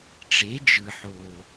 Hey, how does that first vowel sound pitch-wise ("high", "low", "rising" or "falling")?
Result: rising